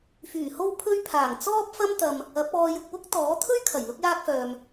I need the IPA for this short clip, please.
fyː˨˩ho˧wpʰɵ˧ɥpʰaː˨˩ŋ t͡sɔː˥p̚fɐ˥mt̪ɐ˧m | ɐ˨˥p̚ɔː˧jʊ˧k̚ wʊ˥k̚t̪ɔː˨˥t̪ʰɵ˥ɥkʰɐ˨˩j lʊ˧k̚jaː˧k̚fœː˨m

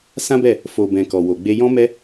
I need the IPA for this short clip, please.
sã˦bɛ˦˨ | fo˨ bɛ̃˨kɔ˨ wo˨ɡ͡be˧ jɔ̃˧mɛ˧

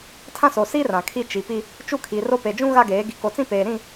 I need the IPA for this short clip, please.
tʰã˦so˨ si˦ rã˨kʰi˦ t͡ʃi˨pi˦ | t͡ʃu˦˨kʰi˨ro˦ pe˨d͡ʒũ˦ ɣa˦ɡeː˨˦ ɡi˨ko˨t͡sĩ˦peː˨ ɾĩ˦˨

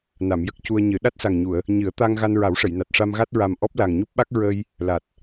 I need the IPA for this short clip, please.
na˨˩˨mjə˦˥k̚cu˧ə̯ɲɨ˨˩˦ ɗa˦˥t̚sa˨˩ŋɲu˨˩˨ə̯ | ɲɨ˨˩˦ə̯ t̪a˧ŋ ɣa˧nɹa˨˩˦wʂə˨˩˨jna˨˩t̚ ʂa˧mɣa˦˥t̚ɹa˨˩m ʔɔ˦˥p̚la˨˩ŋɲu˦˥p̚ɓa˦˥k̚ ɹə˧j | la˨˩t̚

